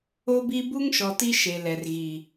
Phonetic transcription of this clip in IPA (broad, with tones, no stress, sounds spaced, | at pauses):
o˦ b i˦ b u˦ ŋ ʃ ɔ˨ t i˦ ʃ e˨ l ɛ˨ r ɣ i˨